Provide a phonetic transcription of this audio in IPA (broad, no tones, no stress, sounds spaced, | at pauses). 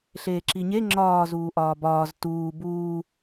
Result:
ɬ eː ǁ i ɲ e ŋ͡ǁ ɒː z uː ʔ ɒː b ɒː z t uː b uː